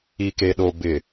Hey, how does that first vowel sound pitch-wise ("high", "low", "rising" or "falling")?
low